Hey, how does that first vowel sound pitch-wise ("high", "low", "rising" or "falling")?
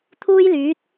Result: high